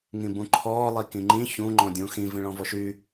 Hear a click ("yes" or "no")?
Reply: yes